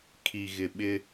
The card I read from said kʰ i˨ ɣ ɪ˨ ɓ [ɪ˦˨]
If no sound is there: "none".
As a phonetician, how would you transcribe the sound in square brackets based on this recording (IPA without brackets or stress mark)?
ɪ˦